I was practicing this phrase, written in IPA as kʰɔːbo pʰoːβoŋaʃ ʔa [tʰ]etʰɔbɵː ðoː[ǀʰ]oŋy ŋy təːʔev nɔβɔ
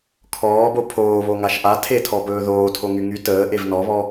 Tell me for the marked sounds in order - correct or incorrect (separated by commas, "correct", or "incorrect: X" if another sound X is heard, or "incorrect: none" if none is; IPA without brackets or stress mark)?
correct, incorrect: tʰ